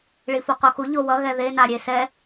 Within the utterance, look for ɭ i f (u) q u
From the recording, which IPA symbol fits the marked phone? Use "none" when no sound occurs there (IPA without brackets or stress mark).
o